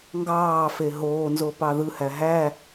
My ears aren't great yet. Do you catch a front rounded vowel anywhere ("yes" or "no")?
no